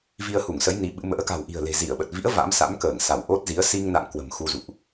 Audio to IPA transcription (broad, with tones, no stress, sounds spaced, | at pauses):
v i˧ ə̯ h u˧˩ ŋ s ə˨˦ j n i˨˦ ɓ ɨ̰˧˥ m ə̰ː˧˥ k a̤˨˩ w ʔ i̤˨˩ ə̯ l e̤˨˩ z i˧˩ ə̯ ɓ ə˨˩ t̚ v ḭ˧˥ ə̯ v a̰˧˥ m s a̰˧˥ m k əː˧˩ ŋ s a˧˩ w ʔ o˦˥ t̚ z i˨˦ ə̯ s i˧ ŋ n a̰˧˨ ŋ k w ə̤˨˩ m x u˧ z ṵ˧˨ ʔ